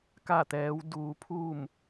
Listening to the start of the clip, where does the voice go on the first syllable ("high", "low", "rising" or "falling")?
falling